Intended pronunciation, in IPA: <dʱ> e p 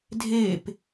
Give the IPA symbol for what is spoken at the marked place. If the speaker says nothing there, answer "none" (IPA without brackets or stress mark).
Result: dʱ